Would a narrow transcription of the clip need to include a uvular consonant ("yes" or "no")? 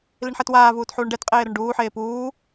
yes